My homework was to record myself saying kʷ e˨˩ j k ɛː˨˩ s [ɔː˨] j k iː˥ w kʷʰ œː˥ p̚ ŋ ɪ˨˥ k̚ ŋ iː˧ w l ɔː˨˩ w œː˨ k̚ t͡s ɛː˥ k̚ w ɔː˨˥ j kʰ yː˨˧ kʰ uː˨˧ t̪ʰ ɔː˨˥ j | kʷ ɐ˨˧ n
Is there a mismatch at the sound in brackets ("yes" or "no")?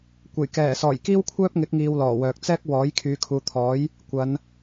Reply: yes